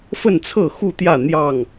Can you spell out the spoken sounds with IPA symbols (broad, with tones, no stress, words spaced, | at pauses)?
fə˥˨nt͡sʰɤ˥˨ xu˥˨t̪jä˥˨ n̪jɑ˥˨ŋ